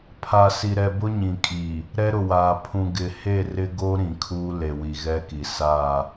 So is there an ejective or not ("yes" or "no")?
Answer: yes